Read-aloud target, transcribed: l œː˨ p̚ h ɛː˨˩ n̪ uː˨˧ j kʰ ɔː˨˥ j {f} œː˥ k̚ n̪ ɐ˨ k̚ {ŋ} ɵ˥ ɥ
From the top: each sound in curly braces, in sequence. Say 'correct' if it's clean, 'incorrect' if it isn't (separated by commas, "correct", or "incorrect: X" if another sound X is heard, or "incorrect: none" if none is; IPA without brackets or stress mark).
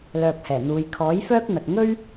correct, correct